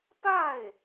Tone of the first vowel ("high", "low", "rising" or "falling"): falling